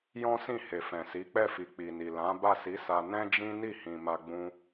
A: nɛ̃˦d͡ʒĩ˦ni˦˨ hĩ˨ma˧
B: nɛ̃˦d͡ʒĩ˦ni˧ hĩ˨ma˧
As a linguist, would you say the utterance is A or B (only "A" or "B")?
A